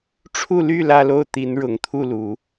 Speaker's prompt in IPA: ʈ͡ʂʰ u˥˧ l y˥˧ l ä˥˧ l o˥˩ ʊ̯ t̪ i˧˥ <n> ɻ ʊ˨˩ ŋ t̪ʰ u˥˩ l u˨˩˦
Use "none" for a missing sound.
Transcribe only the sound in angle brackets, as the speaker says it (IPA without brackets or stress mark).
n